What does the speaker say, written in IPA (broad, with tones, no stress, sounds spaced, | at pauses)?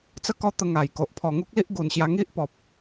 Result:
t͡s ə˥˧ k ɔ˦ t̪ ə˧ ŋ a˨˩ j k o˨ ʔ pʰ ɔ˨˩ ŋ u˦ k̚ l i˦ ʔ ɡ u˨˩ n ɕ j a˧ ŋ i˦ ʔ p ɔ˨ p̚